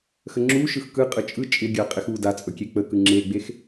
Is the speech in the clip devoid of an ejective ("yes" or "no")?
no